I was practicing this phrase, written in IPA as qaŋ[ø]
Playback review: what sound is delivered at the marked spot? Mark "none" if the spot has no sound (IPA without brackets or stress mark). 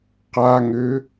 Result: ø